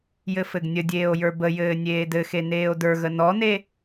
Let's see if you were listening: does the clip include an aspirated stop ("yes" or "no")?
no